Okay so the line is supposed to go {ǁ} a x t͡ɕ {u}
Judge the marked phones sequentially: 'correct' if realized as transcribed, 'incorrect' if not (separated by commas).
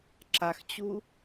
correct, correct